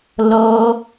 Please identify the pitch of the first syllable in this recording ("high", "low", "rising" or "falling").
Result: high